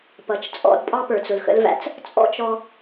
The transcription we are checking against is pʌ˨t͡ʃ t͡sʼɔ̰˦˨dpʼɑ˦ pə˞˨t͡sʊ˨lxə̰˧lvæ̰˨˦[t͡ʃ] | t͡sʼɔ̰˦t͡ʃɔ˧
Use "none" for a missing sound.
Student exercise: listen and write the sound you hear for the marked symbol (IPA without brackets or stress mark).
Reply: t͡s